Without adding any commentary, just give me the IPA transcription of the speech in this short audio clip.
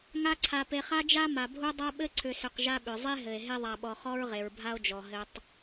ŋ a˦ ǀʰ a˨ p e˨ χ a˦ d͡ʒ a˦ m a˨ bʱ u˥ dˤ a˦ ɓ ɘ˦ ǀʰ ʏ˨ s ʏ˨ q ʒ a˦ ɓ ʏ˩ zˤ e˥ ɦ ɘ˩ e̯ ɦ e˦ ðˤ a˨ ɓ ɔ˨ χ ɔ˥ ɹ ʁ e˩ ɹ bʱ a˦ o̯ d͡ʒ ɔ˩ ɦ ɘ˨ tˤ

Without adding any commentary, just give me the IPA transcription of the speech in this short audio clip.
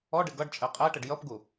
ɔ ɖ ɪ ɡ ʌ ɖ t͡ʃʼ ɛ qʼ ɛ ʈ ə ɖ j ʌ p ɡ u

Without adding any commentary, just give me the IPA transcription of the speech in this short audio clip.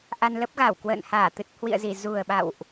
ʔ a˧ n l ə˦˥ p̚ ɣ a˧˩ w k w ə̰ː˧˨ n h aː˧˩ t̪ ɨ˨˩ t̚ h w ḭ˧˨ ə̯ z i˧˩ z u˨˩ ə̯ ɓ a̰˧˨ w ʔ

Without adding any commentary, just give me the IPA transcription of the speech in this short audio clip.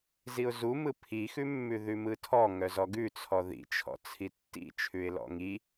z i ʊ̯ z u m ɯ pʰ i x ʉ mː ʉ ð ʉ m ɯ tʰ ɔ ŋ œ z ɔ ɡ ʉ t͡sʰ ɔ ð ḭ t͡ʃʰ ɔ̰ t͡sʰ i tː ḭ t͡ʃʰ ʉ ɪ̯ l ɔ̰ ŋ i

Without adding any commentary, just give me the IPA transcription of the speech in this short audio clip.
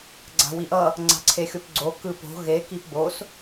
ɡ͡ǀ a̤ w i ʔ ʌ | ŋ͡ǀ a̤ ǀʰ e xʲ o p ɡ͡ǀ o k ɯ p o̤ ɣ e k i p b o s

